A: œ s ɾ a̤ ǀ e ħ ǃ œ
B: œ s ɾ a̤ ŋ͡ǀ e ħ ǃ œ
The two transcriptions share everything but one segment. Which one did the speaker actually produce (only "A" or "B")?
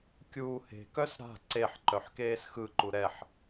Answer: A